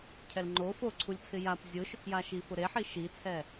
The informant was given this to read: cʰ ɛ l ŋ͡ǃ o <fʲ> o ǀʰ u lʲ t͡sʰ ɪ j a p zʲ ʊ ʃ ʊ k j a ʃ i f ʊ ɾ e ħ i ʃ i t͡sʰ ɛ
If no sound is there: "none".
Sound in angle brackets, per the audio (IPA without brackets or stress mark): f